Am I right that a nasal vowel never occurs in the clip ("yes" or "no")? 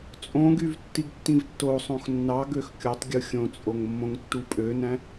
no